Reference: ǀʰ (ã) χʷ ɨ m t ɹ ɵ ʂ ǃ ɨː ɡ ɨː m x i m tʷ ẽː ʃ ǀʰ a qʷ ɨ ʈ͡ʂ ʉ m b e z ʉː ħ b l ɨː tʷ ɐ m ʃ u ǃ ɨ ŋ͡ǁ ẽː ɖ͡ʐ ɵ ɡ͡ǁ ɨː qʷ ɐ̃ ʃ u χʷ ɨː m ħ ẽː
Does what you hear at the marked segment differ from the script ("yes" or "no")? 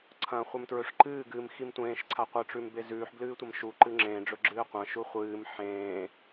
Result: yes